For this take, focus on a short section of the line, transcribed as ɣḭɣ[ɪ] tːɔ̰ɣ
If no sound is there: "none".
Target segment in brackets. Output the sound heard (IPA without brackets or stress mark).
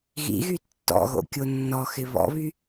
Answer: y